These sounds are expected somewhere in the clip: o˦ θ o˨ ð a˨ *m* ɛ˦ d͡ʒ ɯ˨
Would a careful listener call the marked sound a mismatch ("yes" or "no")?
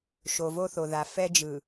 yes